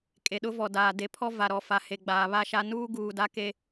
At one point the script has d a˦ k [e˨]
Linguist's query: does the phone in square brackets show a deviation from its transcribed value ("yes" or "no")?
yes